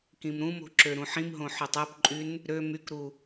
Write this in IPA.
k ĩ m ɾ ũ m o̤ ǁ ø ɾ ũ ħ ĩ m ɦ õ ħ ø tˤ e p ǃʼ y n | ɾ ø m y k ɾ u

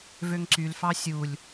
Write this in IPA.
v ø ŋ ǀ y l f ɑ sʲ u lʲ

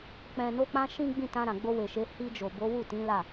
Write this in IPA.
k͡p ɛ̃˨ n o˧ k͡p ã˧ ʃ ĩ˦ ɡ͡b ĩ˦˨ t ã˧ ɾ ã˨ ɡ͡b o˧ w e˨ ʃ e˨˦ h i˧ d͡ʒ o˨ b o˨˦ w u˦˨ t ĩ˨˦ l a˦˨

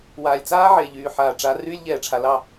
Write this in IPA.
w aː˨ lʲ t͡s aː˦ ʕ e˨ ʎ yː˨ ħ aː˨ ʈ͡ʂ a˨˦ r yː˦ lʲ ʎ ɛː˨ ʈ͡ʂʰ a˨ l ɑ˦˨

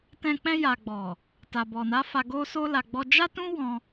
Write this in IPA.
t ɛ̃˧ k͡p ɛ̃˧ j a˨ ɡ͡b ɔ˨ | t a˨ b ɔ˨ n a˨˦ f a˧ ɡ o˦ s o˧ l a˨ ɡ͡b ɔ˧ d͡ʒ a˦ t ũ˦ w ɔ̃˧

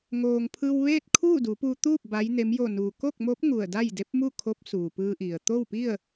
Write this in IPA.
ŋ oː˩ ŋ pʰ ɯː˧ w ʋ eː˥˨ t̚ kʰ uː˥˨ d u˩˧ p uː˧ t̪ uː˥˨ p̚ b a˧˥ j n e˧˥ m j o˧˩ n u˩ k o˥˨ k̚ m oː˧˥ p̚ ŋ u˧˩ ə̯ d a˥˨ j d e˧˥ p̚ m u˥˨ kʰ o˧˥ p̚ s uː˩ p ɯː˧ ʔ i˩ ə̯ t̪ o˥˨ w p i˥˨ ə̯

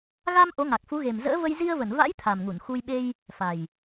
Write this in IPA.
ɣ a˧ m ʔ o˨˦ ŋ a˨˩ k̚ f u˨˦ ɣ e˨˩ m z ə̰ː˧˥ v ə˧ j z i˧ ə̯ v ə˧˩ n v a̰˧˥ j t̪ʰ a˨˩ m ŋ u˧˩ n x u˧ j ɓ e˧ j | f a˨˩ j

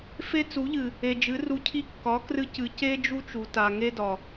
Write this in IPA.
f e˦ t͡s u˨˦ ʎ ɨ˨ | e˨ d͡ʒ ɨ˨˦ r u˧ cʰ i˦ kː ɒ˨˦ k r ɨ˧ c ɨ˨ c e˦ d͡ʒ u˦ t͡ʃ u˨ t a˨ ŋ e˦ d ɒ˨

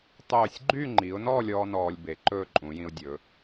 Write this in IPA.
tˤ øː˧˩ sʲ ɡ͡ǃ y˥˧ ŋ͡ǃ i˩˧ ʊ̯ n ɔ˥˧ lʲ ɔː˥ n ɔː˧ lʲ b e˩˧ ǃ ɵː˥˧ ǃʼ ũ˩˧ j ĩ˧ ʊ̯ dʲ ɵː˩˧

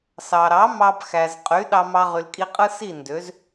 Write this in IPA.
s ɑ˩ ɾ ɑ˩˥ m ɑ˧ b x æ˩ z qʼ y˩˥ ɗ ɑ˧ m ɑ˧ ʁ y˩ l kʼ i˧ qʼ ɯ˥ s i˥˩ n d ø˩˥ z

